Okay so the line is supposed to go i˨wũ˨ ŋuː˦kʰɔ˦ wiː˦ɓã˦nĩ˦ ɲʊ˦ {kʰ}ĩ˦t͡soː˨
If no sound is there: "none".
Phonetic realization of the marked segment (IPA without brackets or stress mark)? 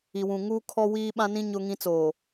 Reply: ŋ